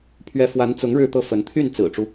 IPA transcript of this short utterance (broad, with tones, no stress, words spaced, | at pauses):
pʰɥɛ˧˥fwa˧˥nt͡sʊ˧˥ŋ ɻɻ̩˥˧t̪ɤ˥˩fə˧˥n t̪ʰy˥˩nt͡sɹ̩˨˩ʈ͡ʂu˦